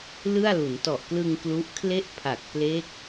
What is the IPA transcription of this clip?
l ɯ˥˩ a̯ l u˩˦ n t ɔ˨˩ ʔ k l ɯ˧ ŋ k l u˦˥ ʔ kʰ l e˥˩ ʔ pʰ a˨˩ k̚ p l e˦˥ k̚

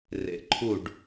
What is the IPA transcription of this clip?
r ḛ˨ ǃʰ u˦˨ ɖ

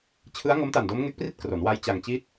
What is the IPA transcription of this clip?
t͡ɕʰ ɯ˦˥ a̯ ŋ o˦˥ m t a˨˩ n d o˦˥ m ŋ e˦˥ k̚ p r i˥˩ t̚ k r o˩˦ n w a˦˥ j t͡ɕ a˧ ŋ t͡ɕ i˥˩ t̚

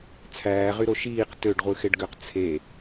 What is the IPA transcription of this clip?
t͡sʰ æː ʁ y ɾ o ʃ iː q t ø ɖ ʁʷ ɯ x e ɖ ɡ ø q t͡sʰ e

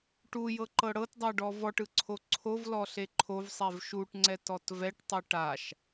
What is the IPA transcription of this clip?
ʈ u j ɤ ǃ ɤ ɽ ɤ t dˤ a ɖ ɔ v ɔ ʈ ɯ ǀʰ o ǀʰ o v l ɔ ɬ e ǃʰ o v sˤ ɛ v ʃ u ʈ ŋ͡ǀ ɛ t ɔ t v ɛ ʈ tˤ ɯ ʈ a ʃ

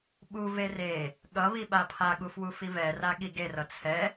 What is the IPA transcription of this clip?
ɓ u v e r e | ɠ ʌ β i ɓ a pʰ a ɠ u f w u f i v ɛ r a ɠ i ɡ e r ʌ t͡sʰ ɛ

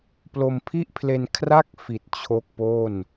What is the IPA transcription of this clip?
p l o˧ m pʰ i˥˩ ʔ pʰ l e˧ n kʰ r a˥˩ k̚ f i˨˩ t̚ t͡ɕʰ o˥˩ k̚ p o˥˩ n

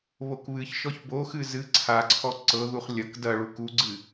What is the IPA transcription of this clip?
β o k β ɨ ç ʃ ɔ ç b o x ɨ z ɨ ǀʰ a ǀʰ ɔ ǀ ɤ ð u χ lʲ ɐ k d ɐ ɭ u k u ɡ͡ǀ ɨ

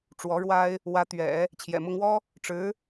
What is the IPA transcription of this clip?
ʈ͡ʂ w ɔ˧˥ ɻ w a˥ ɪ̯ | w ä˧˥ t̪ ɥ ɛ̰˨˩˦ | t͡ɕʰ j ɛ̰˨˩ m ʊ˥ ŋ w ɔ˥ | ʈ͡ʂ ɻ̩˧˥

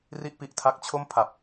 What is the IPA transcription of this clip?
r i˥˩ ʔ p i˦˥ ʔ tʰ a˦˥ k̚ t͡ɕʰ o˥˩ m pʰ a˨˩ p̚

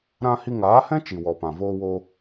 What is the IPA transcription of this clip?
ɾ ã˦ h i˧ ŋ aː˨˦ h ɛ̃˦ t͡ʃ i˨ w ɔ˨ p ã˨ v oː˧ w o˧

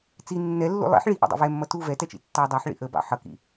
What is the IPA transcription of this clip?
t͡s i nː ɛ lː ṵ lˠ ḭ ħ ɭ i ʔ ḭ dˤ ḭ v ɛ mː ʌ t u v ɛ t ɛ t͡ʃ ḭ tː ɑ dˤ ɑ ħ ɭ ḭ ʔ ə b ɑ̰ ħ ʌ k ḭ

